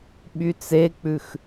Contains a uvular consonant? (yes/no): no